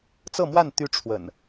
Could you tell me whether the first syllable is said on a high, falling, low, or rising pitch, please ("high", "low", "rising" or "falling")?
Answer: falling